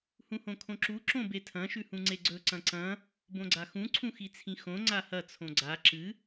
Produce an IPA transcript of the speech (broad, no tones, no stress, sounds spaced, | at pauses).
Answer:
h ũ h õ kʰ õ ǁ u ǁ õ b e tʰ ɐ̃ ʃ ʉ h ũ ŋ͡ǀ e ɡ͡ǀ ɵ ǀ ɐ̃ ǀ ɐ̃ | b õ ɡ͡ǀ a x ũ ǀʰ ũ x i t͡sʰ ĩ x õ ŋ͡ǀ a h ɐ t͡sʰ õ ɡ͡ǀ a ǁ ɨ